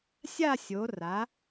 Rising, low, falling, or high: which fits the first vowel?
falling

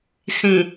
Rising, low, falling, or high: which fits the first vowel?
low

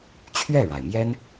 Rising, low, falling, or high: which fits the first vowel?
falling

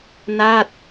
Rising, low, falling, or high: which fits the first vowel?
falling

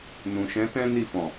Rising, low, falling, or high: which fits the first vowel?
low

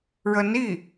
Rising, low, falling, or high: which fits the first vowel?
rising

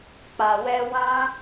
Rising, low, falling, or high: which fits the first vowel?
low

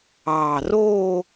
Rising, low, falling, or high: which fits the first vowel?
low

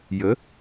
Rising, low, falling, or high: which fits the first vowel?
rising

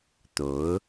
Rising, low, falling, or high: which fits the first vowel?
rising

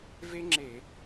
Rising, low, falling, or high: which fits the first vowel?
high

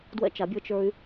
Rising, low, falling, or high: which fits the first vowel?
high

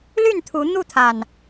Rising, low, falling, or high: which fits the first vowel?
falling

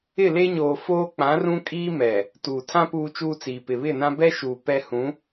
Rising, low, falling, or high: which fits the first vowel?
falling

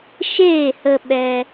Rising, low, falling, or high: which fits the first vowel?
falling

